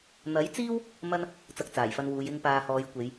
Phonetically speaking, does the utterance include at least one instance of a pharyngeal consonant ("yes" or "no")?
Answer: no